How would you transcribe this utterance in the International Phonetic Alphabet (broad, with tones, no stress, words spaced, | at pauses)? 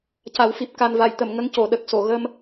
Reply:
ca˨˩˦wfi˨˩p̚ ka˨˩nva˨˩˨j t̪ə˨˩˨m ŋə˧˥ŋco˨˩˨ɗə˨˩k̚so˨˩˨ ɣə˧m